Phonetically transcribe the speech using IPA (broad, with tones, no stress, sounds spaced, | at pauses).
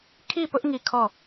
kʰ i˦˨ p ʊ˦ ʔ ŋ i˦˨ kʰ ɔ˦˨